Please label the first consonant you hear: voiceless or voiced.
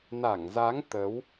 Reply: voiced